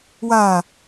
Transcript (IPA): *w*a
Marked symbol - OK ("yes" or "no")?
yes